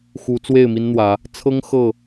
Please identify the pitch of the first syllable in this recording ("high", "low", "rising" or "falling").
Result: rising